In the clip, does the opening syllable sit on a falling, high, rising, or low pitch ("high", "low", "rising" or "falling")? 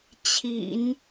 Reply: low